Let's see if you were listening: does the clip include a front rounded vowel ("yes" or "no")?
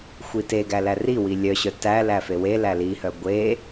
yes